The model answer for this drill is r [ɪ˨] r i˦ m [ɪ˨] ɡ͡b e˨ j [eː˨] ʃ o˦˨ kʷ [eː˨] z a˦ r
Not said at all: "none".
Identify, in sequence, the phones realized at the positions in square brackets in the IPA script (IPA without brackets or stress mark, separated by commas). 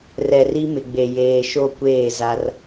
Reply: ɛ˨, ɪ˨, eː˨, eː˦˨